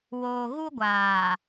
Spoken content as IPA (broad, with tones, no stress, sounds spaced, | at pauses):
w oː˨ ɣ u˦ ɡʷ aː˨